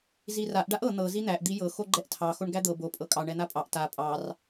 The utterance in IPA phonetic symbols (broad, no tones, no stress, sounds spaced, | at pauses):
z i r a ʔ ɖ a ʔ ɤ n̪ ɤ z i n̪ æ ʔ d̪ i j ɤ x o ɡ͡ǃ ɛ ʔ tʰ ɑ x o ɳ ɡ æ d̪ ɤ b o pʼ ɤ kʼ ɑ ɳ ɛ n̪ a pʼ ɑ ʔ t a pʼ ɑ r